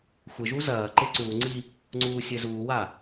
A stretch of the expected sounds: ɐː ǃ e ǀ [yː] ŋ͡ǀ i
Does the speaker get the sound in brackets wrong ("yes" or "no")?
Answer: yes